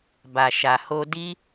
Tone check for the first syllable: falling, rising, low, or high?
low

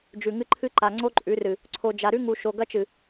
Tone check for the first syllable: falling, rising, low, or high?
low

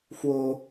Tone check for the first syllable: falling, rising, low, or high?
high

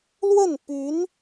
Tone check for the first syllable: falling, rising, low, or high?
falling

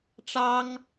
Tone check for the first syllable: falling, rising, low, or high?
high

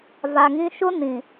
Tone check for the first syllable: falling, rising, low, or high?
low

